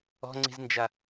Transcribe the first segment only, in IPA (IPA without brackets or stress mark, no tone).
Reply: ɔ̤